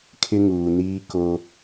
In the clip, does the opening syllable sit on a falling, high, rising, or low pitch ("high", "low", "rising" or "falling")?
high